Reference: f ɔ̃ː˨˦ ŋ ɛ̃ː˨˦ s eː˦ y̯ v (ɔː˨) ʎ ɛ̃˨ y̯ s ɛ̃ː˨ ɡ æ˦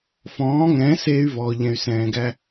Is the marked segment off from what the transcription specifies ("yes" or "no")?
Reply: no